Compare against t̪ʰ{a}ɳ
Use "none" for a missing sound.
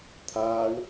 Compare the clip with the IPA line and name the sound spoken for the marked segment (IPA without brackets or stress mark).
a